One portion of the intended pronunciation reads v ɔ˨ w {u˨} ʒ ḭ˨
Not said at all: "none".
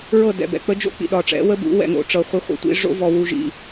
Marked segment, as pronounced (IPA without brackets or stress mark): u˨